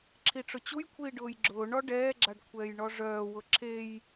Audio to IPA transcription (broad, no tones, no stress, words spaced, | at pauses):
ǁʰiʈ͡ʂʊt͡ɕujkʷʰiː ɖʊːjɡ͡ǁʊːɳɔ ɖɛːɡ͡ǁaɖ kʷʰɛːjɳɔʐœːwʊ ǁʰej